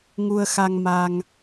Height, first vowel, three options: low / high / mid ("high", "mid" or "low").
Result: high